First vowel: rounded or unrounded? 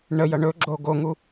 unrounded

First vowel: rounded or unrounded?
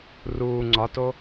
rounded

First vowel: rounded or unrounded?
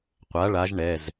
unrounded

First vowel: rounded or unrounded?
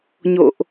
rounded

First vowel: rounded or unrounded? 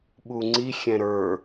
rounded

